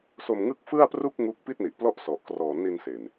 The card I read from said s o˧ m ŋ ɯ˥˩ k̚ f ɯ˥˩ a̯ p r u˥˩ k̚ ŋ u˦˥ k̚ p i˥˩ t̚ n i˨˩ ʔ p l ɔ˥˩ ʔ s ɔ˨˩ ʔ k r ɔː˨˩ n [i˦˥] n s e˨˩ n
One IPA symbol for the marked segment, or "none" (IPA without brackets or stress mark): i˧